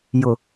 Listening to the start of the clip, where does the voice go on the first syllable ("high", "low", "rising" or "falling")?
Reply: low